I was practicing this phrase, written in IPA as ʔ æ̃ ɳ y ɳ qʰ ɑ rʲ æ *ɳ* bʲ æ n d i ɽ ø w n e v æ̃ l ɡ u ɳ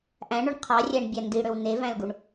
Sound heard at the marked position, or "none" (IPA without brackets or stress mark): ɳ